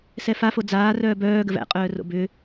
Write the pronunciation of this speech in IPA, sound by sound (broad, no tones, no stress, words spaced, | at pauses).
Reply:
sɛfafo d͡zaːrœː bœːɡəv æ̰qʼœːro̰ bʏ